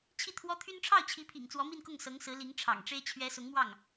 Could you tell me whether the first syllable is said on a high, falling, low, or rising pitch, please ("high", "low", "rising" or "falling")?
falling